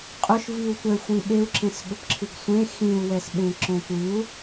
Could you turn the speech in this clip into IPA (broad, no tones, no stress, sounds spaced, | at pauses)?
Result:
qʼ ʊ ʃ v i u̯ tʷ ɛ xʷ ĩ ɓ e u̯ ǁ ẽ s ɠ ʊ p ǁʰ ɨ ɡ sʷ ẽ x ĩ u̯ w ɛ s ɓ ẽ ǁ õ tʷ ɨ u̯